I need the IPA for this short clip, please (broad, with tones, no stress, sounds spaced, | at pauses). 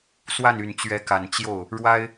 s w a˥˩ n y˨˩ n t͡ɕ ɥ ɛ˧˥ k a˨˩ n t͡ɕ j o˥˩ ʊ̯ | ɻ w a˥ ɪ̯